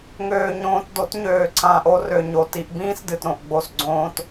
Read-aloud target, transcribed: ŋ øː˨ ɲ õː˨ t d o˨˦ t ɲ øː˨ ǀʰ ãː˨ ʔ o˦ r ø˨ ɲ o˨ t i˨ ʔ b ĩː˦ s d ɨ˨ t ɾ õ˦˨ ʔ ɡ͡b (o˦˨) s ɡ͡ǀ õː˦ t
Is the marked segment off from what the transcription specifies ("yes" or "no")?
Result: no